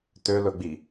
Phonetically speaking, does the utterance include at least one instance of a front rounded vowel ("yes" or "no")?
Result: yes